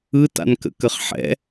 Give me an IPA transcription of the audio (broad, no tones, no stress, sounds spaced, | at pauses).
ɯ t a̰ n k ə̰ k ə χ ħ ɛ̰